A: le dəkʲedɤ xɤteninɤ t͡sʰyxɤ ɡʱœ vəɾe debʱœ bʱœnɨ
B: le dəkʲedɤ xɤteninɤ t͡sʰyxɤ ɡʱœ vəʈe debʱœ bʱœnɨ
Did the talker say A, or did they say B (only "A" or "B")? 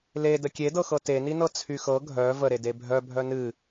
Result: A